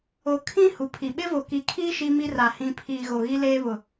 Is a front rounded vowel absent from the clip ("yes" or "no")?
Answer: yes